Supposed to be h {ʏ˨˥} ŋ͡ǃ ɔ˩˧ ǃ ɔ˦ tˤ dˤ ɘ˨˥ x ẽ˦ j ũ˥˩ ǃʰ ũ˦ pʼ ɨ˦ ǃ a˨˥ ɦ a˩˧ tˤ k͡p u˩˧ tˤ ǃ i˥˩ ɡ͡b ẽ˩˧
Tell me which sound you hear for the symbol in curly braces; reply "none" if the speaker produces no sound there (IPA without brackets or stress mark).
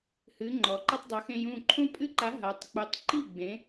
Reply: ɨ˨˥